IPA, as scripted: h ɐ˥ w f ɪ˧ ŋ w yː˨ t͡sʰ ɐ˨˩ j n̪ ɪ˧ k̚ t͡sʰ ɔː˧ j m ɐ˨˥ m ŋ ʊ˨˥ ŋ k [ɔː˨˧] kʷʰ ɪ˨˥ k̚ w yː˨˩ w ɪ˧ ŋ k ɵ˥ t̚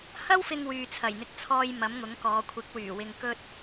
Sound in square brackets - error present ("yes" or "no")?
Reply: no